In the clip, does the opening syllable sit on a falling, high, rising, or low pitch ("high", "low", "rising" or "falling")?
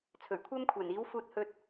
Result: low